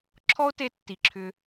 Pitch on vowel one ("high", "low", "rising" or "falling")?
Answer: high